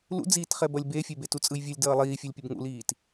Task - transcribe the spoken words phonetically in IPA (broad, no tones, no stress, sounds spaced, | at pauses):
l ṵ d͡z iː t χ ɛ b ʌ lʲ b e fʲ e b e t u t͡sʼ ɯ j vʲ u lʲ d ʌː lˠ iː fʲ ɛ lʲ pʲ ʌ b ŋ ṵ l iː t